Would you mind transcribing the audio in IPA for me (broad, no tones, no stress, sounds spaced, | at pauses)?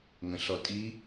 ŋ ə̃ ɬ ɔ tʼ i